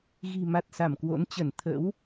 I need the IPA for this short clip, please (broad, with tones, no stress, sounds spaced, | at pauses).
ɣ i̤˨˩ m a˨˩ t̚ s a˧˩ m k w o̰˧˥ n t͡ɕ ə˧˩ n t̪ʰ ə̰˧˥ w